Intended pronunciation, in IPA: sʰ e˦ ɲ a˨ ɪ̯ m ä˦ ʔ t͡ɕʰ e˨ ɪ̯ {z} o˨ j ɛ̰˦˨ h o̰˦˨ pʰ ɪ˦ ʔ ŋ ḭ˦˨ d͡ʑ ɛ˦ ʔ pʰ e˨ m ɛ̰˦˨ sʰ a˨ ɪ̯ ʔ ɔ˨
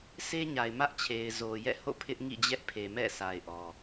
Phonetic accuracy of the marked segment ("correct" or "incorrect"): correct